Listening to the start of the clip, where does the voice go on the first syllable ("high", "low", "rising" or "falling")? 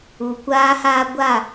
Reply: low